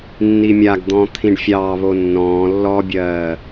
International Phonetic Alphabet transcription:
nː i mʲ a ɡ d̪ ɔ̃ː t̪ʰ ĩ ɖ fʲ ɑː β o nː ɔ̃ː lː ɔ bʲ ɜː

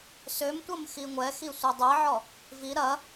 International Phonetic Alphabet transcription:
s ø m tʷ ɐ m x i ŋʷ ɛ x i sʷ ɛ dˤ e ʕ ɔ | v i ɾ ɐ

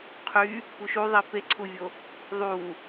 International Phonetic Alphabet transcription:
qʰ y | p u ʃ u ðˤ i p e ǀʰ u vʲ o | ðˤ u

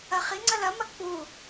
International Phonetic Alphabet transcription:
ɐ χ i ŋ͡ǀ ɐ l ɐ m ɐ k͡p u

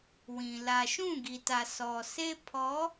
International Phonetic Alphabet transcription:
w ĩ˨ l a˨ ʃ ũ˦˨ ɡ i˨ t a˨ s ɔ˨ s e˦ pʰ ɔ˨˦

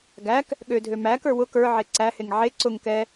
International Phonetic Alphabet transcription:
ɡ æ k | ɠ ø dʱ ø m æ k ə˞ w ʊ k ə˞ ʕ e ǀ æ h e ŋ ʕ e ǀ ʊ ŋ k ɛ

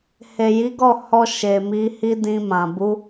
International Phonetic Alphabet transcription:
h e˨ j i˨˦ ɡ ɔ˦˨ h ɔ˧ ʃ e˨ m i˨˦ h i˦ d ĩ˧ m ã˨ b u˨˦

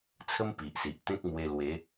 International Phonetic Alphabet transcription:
t͡sʰ ə˦ m p i˨ ʔ s i˨ ʔ t̪ ẽ˦ k̚ m w e˧ l w e˨˦

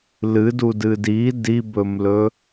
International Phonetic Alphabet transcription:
l ɨ d u d ɨ d i d i b ɵ m l ɵ

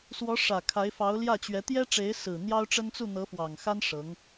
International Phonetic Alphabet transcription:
s w ɔ˧˥ ʂ ä˨˩ kʰ a˧˥ ɪ̯ f ɑ˧˥ ʊ̯ l j ä˥˩ t͡ɕ ɥ ɛ˧˥ t̪ j ɛ˥ ʈ͡ʂ e˧˥ ɪ̯ s ɹ̩˨˩ n̪ j ɑ˥ ʊ̯ ʈ͡ʂ ə˥ n t͡s u˥˩ n̪ ɤ˧˥ f w ɑ˨˩ ŋ x a˥ n ʂ ɤ˧˥ ŋ

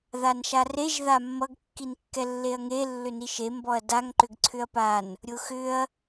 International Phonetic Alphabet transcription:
ð a n ʃ a r e ʒ ð a mː ʌ ɡ kː i n kː ɛ lː e ɐ̯ ŋ e lː ʏ n i ʃ e m b ɔ ɐ̯ d a ŋ ǃ ʏ ɡ ǀʰ ʏ ɐ̯ p a n | ɾʲ ʊ x ʏ ɐ̯

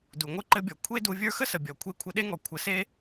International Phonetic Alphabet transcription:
d u˨ ŋʷ ɘ˦ ǃ ɘ˧ bʲ ɔ˨ kʷʰ e˦ d u˧ vʲ ə˞˦ x ə˦ s ə˨ bʲ ɔ˨ kʷʰ e˧ kʷʰ ɘ˧ ɗ e˦ ŋ ɔ˨ kʷʰ ə˨˦ s e˦

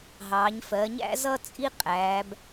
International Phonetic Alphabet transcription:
ɦ ɑː˩˧ ɲ f ɜ˩˧ ɲ æ̰˥ z ʌ˥ t͡sʼ i˥ qʼ æː˩˧ b

